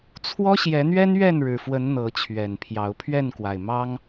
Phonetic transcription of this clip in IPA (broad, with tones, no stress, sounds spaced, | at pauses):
t͡sʰ w ɔ˦ ɕ j ɛ˨˦ n̪ ɥ ɛ˦ n ɥ ɛ˥˨ n ɻ ɻ̩˨˩ f w ə˨˦ n n̪ ɤ˨˦ t͡ɕʰ ɥ ɛ˨˩ n pʰ j ɑ˨˦ ʊ̯ pʰ ɥ ɛ˥˨ n k w a˨˩ ɪ̯ m ɑ˦ ŋ